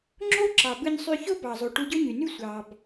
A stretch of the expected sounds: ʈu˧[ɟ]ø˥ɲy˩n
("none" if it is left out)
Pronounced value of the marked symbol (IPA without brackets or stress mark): ɟ